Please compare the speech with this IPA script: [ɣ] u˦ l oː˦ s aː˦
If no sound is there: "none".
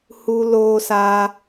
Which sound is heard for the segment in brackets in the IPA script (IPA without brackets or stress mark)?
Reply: h